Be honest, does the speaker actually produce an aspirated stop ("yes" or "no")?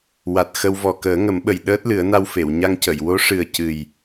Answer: no